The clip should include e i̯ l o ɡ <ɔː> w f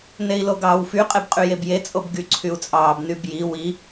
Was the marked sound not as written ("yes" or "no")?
yes